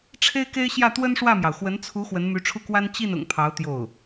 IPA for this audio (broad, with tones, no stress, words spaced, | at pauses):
ʈ͡ʂʰe˥ɪ̯ke˥ɪ̯ɕjä˥˩ t̪wə˥nʂwä˥˩mjɑ˩ʊ̯ xwə˧˥nt͡sʰu˧˥ xwə˧˥nmy˧˥ʈ͡ʂʰu˥˩kwa˥n t͡ɕi˥˩n ʊ̰˨˩ŋpʰɑ˧˥ʊ̯ t̪jo˥˩ʊ̯